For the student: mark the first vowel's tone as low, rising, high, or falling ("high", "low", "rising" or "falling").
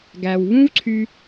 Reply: low